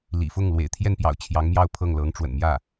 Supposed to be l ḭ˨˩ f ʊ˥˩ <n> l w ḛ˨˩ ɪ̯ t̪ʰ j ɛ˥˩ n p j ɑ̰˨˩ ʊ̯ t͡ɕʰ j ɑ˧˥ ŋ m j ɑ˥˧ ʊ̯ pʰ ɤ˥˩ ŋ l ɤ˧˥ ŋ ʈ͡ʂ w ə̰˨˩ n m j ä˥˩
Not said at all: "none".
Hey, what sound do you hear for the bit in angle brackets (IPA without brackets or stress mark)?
ŋ